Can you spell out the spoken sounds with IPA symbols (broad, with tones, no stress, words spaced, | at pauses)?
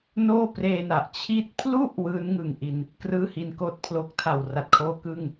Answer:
noː˥˩preː˧na˨˩ʔ t͡ɕʰiː˥˩t̚ pʰlu˥˩ʔ wɯː˦˥nŋɯ˨˩ŋʔi˧n | krɯː˥˩hi˧nkoː˥˩t̚pʰlo˦˥k̚ tʰa˨˩wra˨˩t̚kʰoː˧ kɯ˥˩ŋ